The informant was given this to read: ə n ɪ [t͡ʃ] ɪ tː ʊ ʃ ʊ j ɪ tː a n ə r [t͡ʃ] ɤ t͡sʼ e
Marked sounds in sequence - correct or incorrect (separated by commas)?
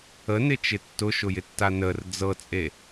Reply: correct, incorrect